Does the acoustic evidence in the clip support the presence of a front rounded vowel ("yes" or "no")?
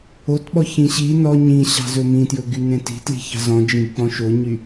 yes